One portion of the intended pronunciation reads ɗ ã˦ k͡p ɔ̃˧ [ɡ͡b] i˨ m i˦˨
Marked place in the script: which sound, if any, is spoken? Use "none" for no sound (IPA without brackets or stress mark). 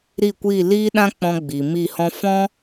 ɡ͡b